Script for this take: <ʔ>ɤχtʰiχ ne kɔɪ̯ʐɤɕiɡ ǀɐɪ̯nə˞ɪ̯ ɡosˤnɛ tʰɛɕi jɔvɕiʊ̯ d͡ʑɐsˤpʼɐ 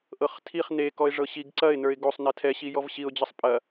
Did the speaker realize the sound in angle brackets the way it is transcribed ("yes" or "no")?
yes